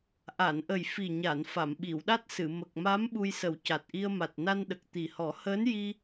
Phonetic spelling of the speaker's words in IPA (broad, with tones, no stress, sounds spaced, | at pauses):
ʔ a˨˩˨ n ʔ ə˨˩ j f i˨˩ ɲ a˨˩˨ n f a˨˩˨ m ɓ i˨˩˨ w ɗ a˦˥ t̚ s ɨ˨˩˨ m ə˨˩ k̚ m a˧˥ m ɓ u˧ j s ə˨˩˦ w c a˨˩ t̚ ʔ i˧ ə̯ m a˨˩ t̚ n a˧ n ɗ ə˨˩ k̚ t̪ i˨˩ h ɔ˨˩˦ h əː˧˥ n j i˧